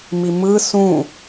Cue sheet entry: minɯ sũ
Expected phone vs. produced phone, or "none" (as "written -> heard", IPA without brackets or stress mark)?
n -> m